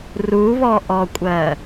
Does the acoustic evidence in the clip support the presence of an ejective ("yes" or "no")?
yes